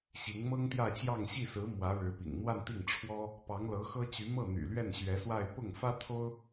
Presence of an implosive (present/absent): absent